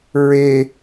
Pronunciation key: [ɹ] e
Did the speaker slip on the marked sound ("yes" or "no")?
no